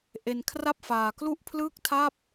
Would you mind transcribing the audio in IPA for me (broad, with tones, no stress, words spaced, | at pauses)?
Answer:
ʔe˧nkʰra˥˩p̚faː˧klu˥˩ʔ pʰlɯː˥˩k̚tʰa˥˩p̚